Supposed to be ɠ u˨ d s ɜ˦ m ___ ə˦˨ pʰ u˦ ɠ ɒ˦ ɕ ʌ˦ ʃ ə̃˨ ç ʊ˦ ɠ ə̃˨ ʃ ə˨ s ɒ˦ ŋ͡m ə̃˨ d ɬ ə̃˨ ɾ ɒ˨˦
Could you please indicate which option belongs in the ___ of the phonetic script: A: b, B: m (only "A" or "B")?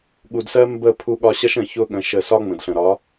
A